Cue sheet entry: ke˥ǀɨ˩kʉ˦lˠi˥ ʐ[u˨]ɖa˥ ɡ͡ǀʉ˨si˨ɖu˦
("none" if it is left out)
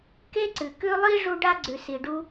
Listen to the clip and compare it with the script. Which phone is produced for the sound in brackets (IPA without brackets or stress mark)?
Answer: u˦